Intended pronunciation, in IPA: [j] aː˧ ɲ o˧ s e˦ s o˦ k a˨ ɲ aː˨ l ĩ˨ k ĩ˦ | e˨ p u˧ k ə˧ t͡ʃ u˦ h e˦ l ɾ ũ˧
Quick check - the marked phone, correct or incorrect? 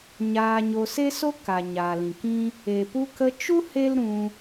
incorrect